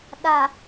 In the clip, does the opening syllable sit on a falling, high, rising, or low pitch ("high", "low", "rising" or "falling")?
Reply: low